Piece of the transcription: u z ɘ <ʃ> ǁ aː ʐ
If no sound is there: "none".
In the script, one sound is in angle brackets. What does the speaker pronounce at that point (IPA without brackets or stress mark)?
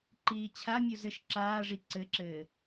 ʃ